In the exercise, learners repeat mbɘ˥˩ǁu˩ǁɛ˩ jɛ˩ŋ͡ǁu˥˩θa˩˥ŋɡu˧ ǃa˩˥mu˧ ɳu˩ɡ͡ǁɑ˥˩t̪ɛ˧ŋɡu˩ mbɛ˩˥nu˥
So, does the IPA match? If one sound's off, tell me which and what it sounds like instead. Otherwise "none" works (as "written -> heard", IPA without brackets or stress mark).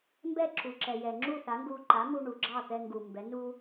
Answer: ɘ˥˩ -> ɛ˥˩